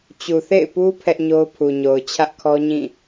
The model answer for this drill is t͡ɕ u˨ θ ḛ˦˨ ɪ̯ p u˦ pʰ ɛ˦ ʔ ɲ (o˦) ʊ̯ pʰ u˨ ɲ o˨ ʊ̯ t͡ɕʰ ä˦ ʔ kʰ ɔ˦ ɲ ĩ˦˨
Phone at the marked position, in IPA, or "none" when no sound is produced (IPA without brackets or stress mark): o˦